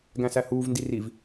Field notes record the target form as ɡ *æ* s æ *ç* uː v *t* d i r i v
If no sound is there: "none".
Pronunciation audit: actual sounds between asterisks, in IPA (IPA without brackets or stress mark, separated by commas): æ̃, h, n